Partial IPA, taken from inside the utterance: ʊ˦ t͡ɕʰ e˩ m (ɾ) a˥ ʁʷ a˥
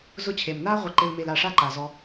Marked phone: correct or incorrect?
incorrect